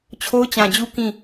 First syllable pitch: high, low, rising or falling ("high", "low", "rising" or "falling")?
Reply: high